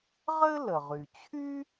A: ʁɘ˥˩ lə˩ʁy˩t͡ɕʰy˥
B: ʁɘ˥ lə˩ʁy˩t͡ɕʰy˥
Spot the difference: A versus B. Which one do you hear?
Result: B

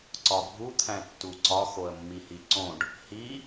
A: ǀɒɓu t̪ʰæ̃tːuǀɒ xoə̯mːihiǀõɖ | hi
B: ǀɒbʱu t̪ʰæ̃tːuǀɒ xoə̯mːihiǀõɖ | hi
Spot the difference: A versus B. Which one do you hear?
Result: B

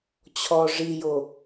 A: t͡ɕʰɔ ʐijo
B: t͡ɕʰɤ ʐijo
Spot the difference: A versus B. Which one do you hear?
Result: A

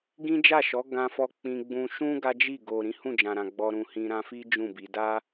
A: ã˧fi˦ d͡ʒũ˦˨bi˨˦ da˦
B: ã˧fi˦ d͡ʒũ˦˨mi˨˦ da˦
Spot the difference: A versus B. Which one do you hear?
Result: A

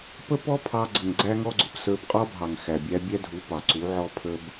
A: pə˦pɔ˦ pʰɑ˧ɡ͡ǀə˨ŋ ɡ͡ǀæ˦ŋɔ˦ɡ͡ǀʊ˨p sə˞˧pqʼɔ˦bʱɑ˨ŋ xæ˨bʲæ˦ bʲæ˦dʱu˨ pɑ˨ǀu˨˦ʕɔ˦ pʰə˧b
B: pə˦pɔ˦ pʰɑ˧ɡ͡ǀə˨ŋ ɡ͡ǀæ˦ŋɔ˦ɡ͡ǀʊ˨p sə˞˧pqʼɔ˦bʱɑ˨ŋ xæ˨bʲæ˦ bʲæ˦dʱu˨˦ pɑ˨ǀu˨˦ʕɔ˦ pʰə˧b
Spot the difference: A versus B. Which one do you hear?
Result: B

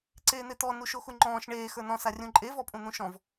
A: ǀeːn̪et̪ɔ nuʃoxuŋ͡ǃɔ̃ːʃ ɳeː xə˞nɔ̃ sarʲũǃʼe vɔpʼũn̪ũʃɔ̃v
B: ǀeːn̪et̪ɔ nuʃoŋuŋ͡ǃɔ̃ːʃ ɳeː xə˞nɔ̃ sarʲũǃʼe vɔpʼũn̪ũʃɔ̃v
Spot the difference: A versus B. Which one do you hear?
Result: A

